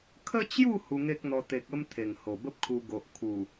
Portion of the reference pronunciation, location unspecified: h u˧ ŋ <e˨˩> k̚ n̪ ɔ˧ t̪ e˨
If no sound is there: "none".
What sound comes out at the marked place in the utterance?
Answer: e˦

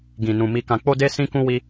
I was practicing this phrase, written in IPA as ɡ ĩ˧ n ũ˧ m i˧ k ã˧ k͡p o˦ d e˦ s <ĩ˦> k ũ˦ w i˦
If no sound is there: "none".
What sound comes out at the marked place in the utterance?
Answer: ĩ˦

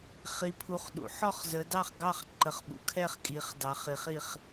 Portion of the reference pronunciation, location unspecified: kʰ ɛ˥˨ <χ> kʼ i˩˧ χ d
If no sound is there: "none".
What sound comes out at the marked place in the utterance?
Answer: χ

